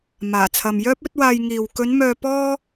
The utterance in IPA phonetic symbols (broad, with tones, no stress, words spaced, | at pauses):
maː˨˩t͡sʰɐ˨mjœː˥p̚ ɵ˨˥t̚waː˧jŋiː˨w kɵ˨˧n mœː˧ pɔː˥